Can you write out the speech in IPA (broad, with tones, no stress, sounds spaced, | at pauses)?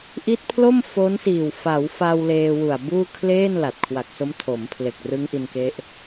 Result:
ʔ i˦˥ t̚ pʰ l o˥˩ m f o˦˥ n s iː˨˩ w f a˩˦ w f a˧ w l eː˧ w u˨˩ a̯ b uː˥˩ kʰ l eː˥˩ n l a˨˩ t̚ kʰ w a˨˩ k̚ s o˦˥ m tʰ o˩˦ m pʰ l e˨˩ k̚ r ɯ˦˥ ŋ ʔ i˧ n k e˦˥ ʔ